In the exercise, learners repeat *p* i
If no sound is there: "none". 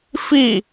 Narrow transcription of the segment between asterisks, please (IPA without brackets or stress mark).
f